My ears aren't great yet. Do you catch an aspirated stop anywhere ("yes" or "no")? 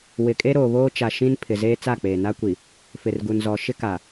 yes